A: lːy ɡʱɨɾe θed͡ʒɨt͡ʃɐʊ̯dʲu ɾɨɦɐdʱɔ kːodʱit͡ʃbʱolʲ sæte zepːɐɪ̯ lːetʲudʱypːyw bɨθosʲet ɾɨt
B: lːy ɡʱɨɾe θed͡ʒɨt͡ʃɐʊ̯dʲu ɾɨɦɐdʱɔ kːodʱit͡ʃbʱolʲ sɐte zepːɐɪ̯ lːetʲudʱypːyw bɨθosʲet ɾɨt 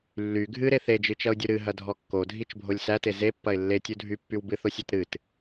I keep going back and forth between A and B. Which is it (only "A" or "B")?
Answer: A